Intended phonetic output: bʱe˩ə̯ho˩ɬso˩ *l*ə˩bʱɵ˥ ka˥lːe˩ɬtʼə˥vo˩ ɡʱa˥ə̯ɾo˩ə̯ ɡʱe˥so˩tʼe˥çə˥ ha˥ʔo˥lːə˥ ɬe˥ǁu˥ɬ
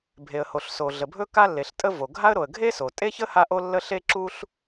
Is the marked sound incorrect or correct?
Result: incorrect: ɮ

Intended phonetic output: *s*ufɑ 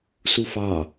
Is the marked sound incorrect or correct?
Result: correct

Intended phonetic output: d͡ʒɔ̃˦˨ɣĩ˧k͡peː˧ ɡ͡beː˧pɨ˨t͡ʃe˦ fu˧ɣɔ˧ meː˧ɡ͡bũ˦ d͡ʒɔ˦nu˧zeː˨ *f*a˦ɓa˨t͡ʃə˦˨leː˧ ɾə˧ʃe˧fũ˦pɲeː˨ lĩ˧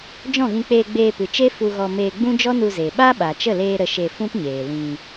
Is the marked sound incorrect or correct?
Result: incorrect: ɓ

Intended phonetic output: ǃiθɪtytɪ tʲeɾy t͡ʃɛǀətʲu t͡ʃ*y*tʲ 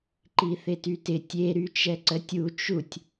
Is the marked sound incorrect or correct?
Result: incorrect: u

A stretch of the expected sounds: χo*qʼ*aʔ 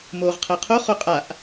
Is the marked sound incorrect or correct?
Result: correct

